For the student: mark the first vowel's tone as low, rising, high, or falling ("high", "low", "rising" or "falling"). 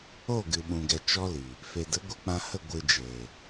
falling